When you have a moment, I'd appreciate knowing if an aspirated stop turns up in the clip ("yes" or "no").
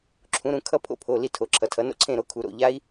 yes